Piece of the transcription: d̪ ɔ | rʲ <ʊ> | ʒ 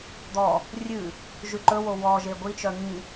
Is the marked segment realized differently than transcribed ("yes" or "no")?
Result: yes